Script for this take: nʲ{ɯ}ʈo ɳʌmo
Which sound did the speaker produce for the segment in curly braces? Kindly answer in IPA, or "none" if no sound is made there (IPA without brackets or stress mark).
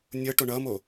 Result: ɤ